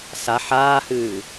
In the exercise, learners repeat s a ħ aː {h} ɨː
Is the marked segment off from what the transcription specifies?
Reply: no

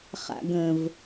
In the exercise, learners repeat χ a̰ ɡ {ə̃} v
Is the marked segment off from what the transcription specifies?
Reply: no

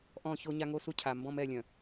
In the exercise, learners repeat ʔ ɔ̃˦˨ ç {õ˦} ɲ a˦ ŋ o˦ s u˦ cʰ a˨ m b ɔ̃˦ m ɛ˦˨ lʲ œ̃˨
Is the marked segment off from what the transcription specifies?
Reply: yes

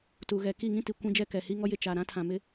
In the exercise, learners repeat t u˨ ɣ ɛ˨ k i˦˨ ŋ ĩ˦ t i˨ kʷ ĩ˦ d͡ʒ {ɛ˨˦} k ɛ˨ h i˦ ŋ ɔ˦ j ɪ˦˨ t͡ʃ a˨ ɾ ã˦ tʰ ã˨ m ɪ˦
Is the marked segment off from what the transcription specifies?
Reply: yes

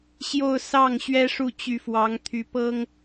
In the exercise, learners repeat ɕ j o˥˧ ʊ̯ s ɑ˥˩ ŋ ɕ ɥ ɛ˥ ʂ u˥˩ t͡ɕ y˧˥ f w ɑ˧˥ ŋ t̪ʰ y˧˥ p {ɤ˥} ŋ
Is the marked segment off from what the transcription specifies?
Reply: no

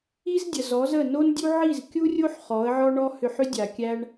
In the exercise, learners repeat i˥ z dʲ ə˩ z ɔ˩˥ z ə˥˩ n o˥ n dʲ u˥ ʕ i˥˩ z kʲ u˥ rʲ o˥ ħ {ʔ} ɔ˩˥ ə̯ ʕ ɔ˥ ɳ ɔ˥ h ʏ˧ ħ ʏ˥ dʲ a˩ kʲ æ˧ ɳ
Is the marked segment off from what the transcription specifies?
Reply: yes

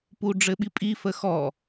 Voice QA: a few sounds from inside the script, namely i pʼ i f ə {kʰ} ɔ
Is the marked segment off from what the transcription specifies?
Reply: yes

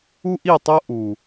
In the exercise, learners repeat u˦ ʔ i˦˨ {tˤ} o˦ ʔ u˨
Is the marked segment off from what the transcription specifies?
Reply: no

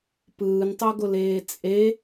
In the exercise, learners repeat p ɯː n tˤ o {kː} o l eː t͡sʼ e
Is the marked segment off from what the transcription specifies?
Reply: yes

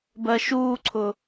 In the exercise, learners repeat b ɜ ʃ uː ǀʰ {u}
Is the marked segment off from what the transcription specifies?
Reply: yes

